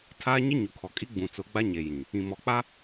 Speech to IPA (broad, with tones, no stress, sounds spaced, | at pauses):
tʰ aː˦ ɲ ɪ˦ ɲ u˨ kʰ ɔ˨ kʼ i˦ ɡ͡b ũ˨ t͡s ʊ˨˦ ɡ͡b a˦ ɲ e˨ j ĩ˨ | ĩ˨ m ɔ˨ k͡p a˦